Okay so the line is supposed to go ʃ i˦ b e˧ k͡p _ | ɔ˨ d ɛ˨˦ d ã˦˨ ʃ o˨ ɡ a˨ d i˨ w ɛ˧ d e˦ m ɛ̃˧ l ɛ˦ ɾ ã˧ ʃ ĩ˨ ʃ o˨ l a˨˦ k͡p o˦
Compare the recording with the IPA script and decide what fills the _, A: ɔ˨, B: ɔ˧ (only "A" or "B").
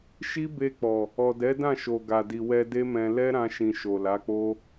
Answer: A